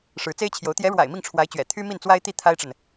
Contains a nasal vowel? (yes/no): no